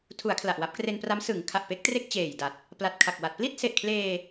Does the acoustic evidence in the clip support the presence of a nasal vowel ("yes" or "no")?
no